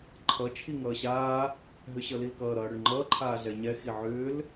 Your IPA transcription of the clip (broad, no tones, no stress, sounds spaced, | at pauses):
ǃʰ ʌ t͡ʃʰ i ŋ ʌː ɕ aː | ɦ ʏ ɕ ʌ l i l k ʌː ɾ ʌː ɽ ʏ ɳ ŋ͡ǃ ʌː ǃʰ aː ɮ ɛ ɲ ɛ x i ʕ ʏː l